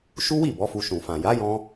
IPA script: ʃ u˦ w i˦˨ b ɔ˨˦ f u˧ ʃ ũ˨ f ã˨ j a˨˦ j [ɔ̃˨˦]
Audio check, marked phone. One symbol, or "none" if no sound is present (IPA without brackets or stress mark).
ɔ̃˧